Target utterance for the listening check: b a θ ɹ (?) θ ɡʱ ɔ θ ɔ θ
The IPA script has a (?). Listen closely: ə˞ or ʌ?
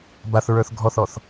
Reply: ə˞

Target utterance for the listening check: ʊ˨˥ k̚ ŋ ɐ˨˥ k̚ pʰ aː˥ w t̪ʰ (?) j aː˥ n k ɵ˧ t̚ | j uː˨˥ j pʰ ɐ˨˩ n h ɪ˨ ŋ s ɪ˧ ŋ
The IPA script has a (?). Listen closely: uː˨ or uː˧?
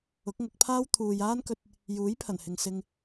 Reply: uː˨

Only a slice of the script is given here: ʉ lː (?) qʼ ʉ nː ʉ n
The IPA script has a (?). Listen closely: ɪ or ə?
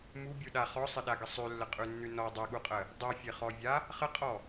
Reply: ə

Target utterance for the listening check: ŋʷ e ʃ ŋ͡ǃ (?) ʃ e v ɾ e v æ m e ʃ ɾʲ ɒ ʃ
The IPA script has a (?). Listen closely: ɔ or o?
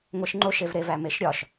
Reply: o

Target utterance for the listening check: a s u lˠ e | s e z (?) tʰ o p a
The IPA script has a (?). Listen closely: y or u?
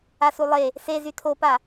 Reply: y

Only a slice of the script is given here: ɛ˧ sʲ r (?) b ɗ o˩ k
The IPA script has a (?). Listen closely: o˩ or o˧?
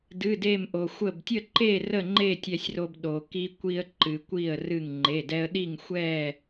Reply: o˧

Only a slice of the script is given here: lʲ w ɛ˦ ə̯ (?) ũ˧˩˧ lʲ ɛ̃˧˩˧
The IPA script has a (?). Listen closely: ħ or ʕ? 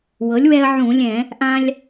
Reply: ʕ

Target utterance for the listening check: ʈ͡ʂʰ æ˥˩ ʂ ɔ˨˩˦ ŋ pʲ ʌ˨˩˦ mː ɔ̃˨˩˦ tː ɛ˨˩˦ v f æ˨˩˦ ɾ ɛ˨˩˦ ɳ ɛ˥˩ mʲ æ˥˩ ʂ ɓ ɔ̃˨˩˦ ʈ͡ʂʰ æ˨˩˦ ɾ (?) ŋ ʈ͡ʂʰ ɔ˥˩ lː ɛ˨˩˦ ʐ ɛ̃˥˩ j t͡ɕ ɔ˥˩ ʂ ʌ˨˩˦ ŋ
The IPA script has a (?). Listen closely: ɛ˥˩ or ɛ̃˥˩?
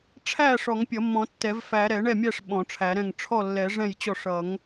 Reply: ɛ̃˥˩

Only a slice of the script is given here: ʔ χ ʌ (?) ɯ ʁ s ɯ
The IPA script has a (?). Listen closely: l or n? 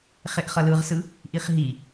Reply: l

